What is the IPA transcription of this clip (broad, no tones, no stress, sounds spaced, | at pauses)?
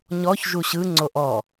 ɲ ɔ ç ʒ u ɕ ɯ ŋ͡ǀ o ʔ ɔ